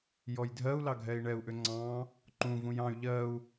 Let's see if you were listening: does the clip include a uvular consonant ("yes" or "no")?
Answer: no